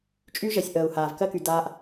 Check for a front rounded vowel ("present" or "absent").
present